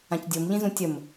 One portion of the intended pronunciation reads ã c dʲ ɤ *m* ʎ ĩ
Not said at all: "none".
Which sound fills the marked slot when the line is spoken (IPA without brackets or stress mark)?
m